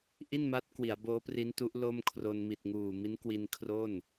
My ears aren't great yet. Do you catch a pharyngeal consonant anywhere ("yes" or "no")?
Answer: no